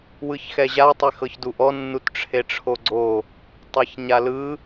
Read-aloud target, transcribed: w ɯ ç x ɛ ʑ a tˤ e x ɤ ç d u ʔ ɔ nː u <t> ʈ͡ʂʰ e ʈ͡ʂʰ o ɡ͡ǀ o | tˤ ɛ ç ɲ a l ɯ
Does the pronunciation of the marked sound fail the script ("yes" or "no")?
no